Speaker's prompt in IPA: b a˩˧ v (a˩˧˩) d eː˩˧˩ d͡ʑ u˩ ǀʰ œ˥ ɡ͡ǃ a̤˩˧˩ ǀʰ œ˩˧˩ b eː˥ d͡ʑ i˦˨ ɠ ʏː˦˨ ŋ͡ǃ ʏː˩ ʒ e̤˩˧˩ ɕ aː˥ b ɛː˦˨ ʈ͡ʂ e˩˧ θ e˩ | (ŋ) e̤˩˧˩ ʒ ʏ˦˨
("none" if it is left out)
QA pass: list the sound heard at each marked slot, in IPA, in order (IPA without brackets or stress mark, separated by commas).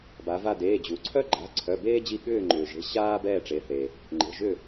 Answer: a˦˨, ŋ͡ǃ